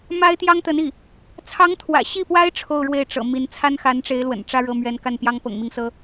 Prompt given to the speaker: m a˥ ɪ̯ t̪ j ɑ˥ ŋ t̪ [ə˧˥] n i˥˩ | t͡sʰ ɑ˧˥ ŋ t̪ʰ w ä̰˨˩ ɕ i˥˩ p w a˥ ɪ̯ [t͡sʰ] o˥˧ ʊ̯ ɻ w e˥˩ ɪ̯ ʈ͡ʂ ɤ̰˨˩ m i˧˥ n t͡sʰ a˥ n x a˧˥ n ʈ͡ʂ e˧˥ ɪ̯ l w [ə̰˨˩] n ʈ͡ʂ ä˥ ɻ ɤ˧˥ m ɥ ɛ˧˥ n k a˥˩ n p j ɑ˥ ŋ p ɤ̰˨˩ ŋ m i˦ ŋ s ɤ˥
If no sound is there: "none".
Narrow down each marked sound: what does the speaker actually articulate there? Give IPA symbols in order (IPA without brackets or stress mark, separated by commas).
ə˧˥, ʈ͡ʂʰ, ə̰˨˩